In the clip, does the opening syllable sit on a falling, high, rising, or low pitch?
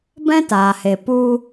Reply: high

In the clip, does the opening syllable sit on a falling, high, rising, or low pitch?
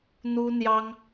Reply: high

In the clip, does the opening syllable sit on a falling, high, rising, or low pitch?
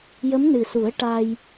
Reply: rising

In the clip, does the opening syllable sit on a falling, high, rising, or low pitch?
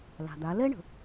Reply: low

